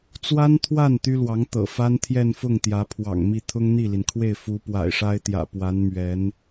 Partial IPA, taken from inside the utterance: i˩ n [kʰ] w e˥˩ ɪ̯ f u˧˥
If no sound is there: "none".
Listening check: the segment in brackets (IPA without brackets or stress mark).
kʰ